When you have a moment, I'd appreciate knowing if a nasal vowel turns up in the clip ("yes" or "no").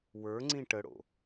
yes